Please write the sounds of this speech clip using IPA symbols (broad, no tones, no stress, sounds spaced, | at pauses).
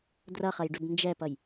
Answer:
d r ʌ χ ʌ j ɖ u d n d͡ʒ ɛ p ʌ j